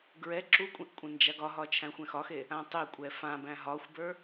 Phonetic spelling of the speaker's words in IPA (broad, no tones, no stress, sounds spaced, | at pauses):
ɡ ɹ ɛ ǁ u kʷʼ ẽ ʔ kʷʼ ẽ n d͡ʒ a ɡ ɒ ɦ ɒ t͡ʃʰ æ̃ xʷ ɛ̃ x ɒ x e | ã tˤ e kʷʼ ɛ f ã b æ̃ ɦ ɒ xʷ b ə˞